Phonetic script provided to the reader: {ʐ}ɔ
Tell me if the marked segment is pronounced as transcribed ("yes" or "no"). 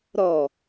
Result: no